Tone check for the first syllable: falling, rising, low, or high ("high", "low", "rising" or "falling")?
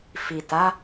low